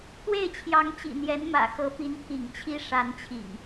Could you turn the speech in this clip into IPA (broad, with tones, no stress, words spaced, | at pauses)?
t̪we˥˨ɪ̯t͡ɕʰjɑ˨˦ŋ t͡ɕḭ˨˩n̪jɛ˨˦nmä̰˨˩xɤ˨˦ pi˨˦nt̪ʰḭ˨˩ŋt͡ɕʰi˦ ʂa˨˦nt͡ɕʰḭ˨˩ŋ